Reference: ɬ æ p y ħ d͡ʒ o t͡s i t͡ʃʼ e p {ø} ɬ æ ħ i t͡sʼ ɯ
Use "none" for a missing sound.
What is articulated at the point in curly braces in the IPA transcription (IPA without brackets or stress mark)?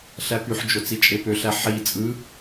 ø